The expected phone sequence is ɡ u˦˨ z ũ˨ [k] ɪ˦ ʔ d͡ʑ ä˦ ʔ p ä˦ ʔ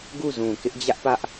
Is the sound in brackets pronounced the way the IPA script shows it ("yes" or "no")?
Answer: yes